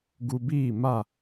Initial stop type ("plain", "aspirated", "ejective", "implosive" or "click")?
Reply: plain